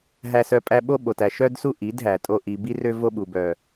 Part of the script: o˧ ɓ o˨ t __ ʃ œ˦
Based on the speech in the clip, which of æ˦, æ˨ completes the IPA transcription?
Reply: æ˨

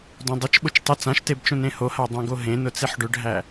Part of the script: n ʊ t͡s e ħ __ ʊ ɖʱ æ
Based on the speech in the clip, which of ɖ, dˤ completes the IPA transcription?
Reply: ɖ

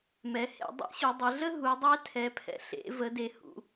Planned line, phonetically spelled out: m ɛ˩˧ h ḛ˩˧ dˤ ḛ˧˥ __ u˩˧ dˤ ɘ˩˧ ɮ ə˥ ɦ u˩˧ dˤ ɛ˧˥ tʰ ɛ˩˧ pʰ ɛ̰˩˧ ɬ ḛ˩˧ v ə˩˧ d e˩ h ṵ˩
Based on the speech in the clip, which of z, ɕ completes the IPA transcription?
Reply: ɕ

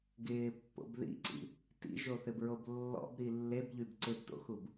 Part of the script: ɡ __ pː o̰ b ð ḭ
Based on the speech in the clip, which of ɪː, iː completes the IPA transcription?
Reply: ɪː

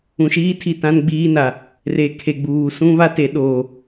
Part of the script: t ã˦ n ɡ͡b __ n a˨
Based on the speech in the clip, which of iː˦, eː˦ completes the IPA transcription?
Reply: iː˦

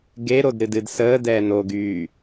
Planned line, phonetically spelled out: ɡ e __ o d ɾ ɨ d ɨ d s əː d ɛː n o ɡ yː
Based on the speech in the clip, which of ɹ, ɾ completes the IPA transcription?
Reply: ɾ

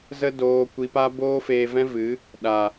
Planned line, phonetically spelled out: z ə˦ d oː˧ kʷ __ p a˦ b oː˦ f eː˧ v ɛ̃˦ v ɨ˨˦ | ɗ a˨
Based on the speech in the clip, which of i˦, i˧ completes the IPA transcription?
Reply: i˧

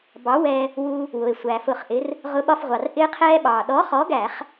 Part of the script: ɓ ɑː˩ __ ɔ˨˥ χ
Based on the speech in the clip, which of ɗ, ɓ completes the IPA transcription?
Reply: ɗ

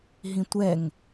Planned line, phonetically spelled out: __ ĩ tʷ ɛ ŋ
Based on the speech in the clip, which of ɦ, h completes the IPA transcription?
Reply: ɦ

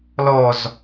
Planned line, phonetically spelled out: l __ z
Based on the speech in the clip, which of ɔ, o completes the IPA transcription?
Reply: ɔ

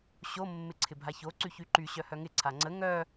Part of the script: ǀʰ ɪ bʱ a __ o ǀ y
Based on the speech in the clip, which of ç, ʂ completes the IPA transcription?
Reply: ç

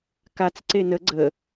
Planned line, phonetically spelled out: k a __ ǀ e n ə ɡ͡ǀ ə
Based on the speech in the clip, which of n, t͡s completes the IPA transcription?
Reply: t͡s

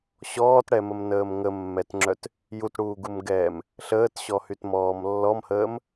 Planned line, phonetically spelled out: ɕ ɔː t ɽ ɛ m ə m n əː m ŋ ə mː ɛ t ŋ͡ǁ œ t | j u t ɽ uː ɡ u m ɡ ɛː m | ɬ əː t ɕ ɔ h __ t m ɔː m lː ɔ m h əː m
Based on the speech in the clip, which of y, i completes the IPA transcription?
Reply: y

